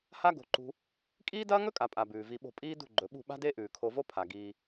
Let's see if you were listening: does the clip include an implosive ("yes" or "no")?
yes